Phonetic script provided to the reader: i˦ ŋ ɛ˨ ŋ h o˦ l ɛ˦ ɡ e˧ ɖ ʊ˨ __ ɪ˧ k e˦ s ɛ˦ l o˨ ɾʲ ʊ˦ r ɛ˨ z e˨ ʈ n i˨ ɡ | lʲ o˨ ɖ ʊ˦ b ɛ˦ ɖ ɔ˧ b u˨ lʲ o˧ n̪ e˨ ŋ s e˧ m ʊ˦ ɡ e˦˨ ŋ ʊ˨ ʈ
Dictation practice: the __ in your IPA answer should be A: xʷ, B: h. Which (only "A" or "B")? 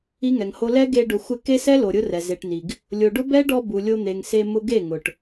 A